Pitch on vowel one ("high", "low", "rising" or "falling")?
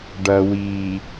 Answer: low